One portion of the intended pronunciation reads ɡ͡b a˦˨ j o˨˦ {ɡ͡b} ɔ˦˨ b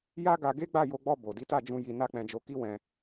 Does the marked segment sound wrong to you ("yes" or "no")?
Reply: no